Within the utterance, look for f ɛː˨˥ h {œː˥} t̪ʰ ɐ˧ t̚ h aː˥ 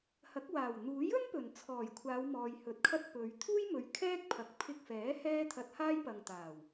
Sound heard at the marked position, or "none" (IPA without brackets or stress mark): ɛː˥